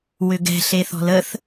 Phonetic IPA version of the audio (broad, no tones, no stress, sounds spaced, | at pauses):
w ʏ ɡ ɛ̤ ɬ e θ ɔ̤ l ə θ